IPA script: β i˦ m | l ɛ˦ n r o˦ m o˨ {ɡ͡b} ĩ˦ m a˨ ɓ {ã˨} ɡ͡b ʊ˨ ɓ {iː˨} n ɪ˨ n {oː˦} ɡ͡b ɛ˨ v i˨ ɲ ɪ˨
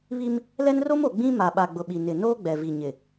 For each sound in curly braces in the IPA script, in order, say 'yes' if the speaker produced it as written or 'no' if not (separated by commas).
yes, no, no, yes